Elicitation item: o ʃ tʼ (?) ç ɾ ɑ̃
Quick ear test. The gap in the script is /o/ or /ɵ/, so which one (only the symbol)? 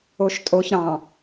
o